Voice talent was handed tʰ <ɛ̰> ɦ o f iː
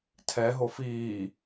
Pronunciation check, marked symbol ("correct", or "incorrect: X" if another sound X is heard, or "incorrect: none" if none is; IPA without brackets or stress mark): incorrect: ɛ